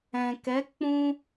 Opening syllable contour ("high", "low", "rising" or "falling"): low